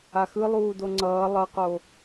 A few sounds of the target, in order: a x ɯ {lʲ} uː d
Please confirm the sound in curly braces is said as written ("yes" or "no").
no